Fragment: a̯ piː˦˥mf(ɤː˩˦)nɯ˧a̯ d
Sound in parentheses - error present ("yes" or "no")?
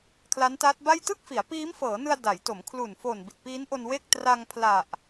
no